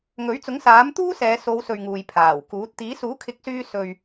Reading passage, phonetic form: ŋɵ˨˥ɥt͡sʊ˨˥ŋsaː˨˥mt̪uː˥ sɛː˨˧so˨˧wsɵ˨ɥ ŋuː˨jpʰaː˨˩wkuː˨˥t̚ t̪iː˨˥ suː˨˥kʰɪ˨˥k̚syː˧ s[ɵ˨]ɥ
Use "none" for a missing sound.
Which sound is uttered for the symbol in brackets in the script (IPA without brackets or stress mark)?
ɵ˨